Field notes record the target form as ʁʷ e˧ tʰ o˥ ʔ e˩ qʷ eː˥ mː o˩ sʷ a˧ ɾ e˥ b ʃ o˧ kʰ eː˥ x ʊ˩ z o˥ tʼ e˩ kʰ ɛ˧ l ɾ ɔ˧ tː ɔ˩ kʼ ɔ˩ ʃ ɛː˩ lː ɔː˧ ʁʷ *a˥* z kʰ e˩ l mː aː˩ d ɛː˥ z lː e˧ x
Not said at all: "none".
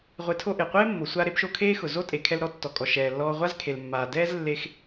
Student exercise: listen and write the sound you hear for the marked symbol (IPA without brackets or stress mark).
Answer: a˥